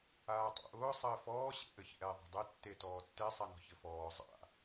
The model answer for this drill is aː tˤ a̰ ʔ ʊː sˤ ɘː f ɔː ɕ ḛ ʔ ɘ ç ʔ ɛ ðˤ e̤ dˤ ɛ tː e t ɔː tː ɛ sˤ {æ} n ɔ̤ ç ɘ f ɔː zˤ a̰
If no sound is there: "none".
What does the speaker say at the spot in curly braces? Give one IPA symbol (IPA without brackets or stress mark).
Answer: a